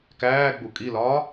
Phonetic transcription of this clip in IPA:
k æː ɡ͡b u kʼ i l ɒː

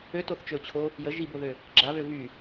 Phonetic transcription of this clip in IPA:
ø t o θ t͡ʃ ø ʊ̯ t͡ɕʰ o | j ə ʒ i b o ð ø | ɡ͡ǁ a β ø v y

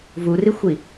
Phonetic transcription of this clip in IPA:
v u r i xʷ i

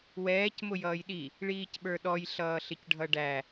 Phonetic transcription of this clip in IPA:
w ɛː c m ʊ j ʌː j ɗ i | ɭ iː c ɓ ə˞ ɗ ɔ j ɬ ʌː ɬ ɪ c ɖʱ ʌ ɖ æ

